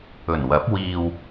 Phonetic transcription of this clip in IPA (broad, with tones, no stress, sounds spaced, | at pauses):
ɵ˨˩ n w ɐ˨˥ p̚ w iː˨ w